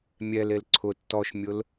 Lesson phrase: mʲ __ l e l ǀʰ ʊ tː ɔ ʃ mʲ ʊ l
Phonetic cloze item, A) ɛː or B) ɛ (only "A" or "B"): B